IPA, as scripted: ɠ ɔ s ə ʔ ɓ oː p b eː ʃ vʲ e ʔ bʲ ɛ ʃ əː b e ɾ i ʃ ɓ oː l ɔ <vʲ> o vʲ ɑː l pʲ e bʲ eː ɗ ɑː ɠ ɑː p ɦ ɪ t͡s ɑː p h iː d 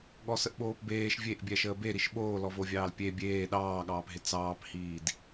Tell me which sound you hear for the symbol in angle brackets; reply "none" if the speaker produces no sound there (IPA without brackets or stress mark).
v